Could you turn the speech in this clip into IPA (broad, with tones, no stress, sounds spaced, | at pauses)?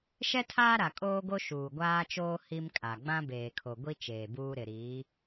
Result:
ʃ ɛ˦ tʰ aː˦ ɾ a˨ kʼ oː˦ ɡ o˦ ʃ uː˨ ɡʷ aː˦ t͡ʃ oː˦ h i˦ m kʼ a˨ ɡ͡b ã˦ b eː˨ kʰ o˨ ɡʷ i˦ t͡ʃ eː˨ b uː˦ ɾ ɪ˨ ɾ iː˨˦